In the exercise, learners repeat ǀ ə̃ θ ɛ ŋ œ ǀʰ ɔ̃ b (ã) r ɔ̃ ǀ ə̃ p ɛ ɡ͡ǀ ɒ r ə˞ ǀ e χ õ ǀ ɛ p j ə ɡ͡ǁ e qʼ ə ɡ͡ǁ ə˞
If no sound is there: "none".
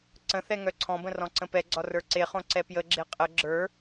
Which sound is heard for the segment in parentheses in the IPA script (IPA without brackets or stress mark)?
ə̃